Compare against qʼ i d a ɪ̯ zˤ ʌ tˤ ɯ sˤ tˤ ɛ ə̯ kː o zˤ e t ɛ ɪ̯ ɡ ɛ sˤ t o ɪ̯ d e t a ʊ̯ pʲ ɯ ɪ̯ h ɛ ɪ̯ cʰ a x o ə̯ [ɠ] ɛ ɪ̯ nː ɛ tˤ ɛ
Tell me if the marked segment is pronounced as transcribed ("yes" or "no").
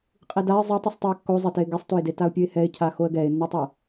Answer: no